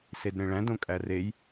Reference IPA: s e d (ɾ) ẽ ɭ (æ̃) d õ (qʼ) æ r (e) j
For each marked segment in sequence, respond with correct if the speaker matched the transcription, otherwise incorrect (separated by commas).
correct, correct, incorrect, correct